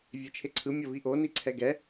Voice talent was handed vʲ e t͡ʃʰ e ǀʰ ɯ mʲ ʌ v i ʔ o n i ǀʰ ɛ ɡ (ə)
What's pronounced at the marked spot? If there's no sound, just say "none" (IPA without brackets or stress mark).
ɛ